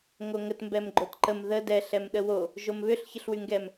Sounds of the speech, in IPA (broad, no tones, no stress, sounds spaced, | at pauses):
ŋ o ŋ ə t m b ɛ m ɡ͡ǃ o t ǃ ə m ð ə d ɛ ɬ ɛ m ɗ ə w o | ʒ o m β ʏ ɬ ç ə ɬ w y ŋ ɡ ɛ m